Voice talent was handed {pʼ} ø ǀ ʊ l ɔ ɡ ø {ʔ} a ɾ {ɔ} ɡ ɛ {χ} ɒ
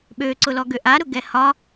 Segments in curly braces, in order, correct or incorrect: incorrect, correct, incorrect, incorrect

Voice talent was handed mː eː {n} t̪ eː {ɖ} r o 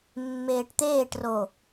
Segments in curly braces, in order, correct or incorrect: incorrect, incorrect

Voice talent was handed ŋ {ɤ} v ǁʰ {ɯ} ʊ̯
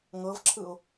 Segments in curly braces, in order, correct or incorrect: correct, correct

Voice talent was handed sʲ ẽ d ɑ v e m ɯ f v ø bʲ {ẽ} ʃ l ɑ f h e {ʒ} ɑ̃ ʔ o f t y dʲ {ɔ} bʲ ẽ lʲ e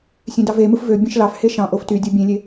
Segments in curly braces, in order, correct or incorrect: correct, incorrect, incorrect

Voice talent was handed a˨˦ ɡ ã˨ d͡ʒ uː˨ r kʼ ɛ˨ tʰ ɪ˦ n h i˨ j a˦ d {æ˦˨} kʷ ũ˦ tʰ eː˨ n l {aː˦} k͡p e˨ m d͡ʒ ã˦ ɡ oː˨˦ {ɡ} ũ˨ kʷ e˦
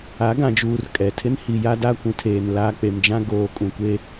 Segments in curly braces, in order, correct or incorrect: incorrect, correct, incorrect

